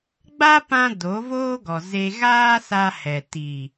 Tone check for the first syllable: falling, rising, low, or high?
high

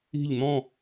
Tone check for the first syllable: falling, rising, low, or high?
falling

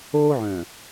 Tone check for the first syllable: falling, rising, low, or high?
high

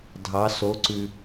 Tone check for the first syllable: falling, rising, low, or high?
rising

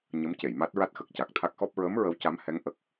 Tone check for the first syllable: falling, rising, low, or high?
rising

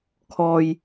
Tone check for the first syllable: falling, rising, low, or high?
low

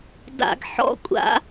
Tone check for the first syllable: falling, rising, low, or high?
low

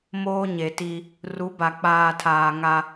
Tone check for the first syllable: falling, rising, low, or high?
high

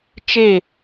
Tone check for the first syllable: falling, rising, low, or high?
falling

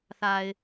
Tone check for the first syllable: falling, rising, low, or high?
low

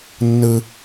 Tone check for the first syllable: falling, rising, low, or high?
high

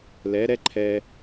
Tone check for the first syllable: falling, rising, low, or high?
rising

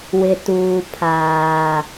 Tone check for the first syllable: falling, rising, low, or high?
low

